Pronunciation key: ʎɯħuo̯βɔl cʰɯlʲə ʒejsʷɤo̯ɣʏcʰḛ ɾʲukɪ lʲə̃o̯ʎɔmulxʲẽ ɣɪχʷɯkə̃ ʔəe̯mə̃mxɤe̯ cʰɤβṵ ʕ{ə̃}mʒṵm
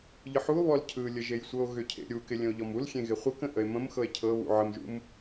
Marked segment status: incorrect: ə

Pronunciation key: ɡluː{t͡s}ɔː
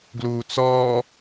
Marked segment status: correct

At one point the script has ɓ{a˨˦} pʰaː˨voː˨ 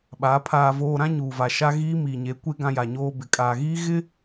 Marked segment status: correct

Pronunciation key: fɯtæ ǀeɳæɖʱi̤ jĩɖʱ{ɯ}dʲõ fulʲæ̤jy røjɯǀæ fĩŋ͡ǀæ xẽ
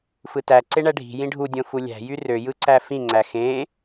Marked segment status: incorrect: u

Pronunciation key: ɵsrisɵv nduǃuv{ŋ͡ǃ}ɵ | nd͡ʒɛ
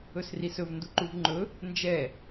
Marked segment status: correct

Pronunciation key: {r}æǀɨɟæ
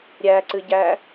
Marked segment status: incorrect: ɾʲ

